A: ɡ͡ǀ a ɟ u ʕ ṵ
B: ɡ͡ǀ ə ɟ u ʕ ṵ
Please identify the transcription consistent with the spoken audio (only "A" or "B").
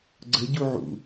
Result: B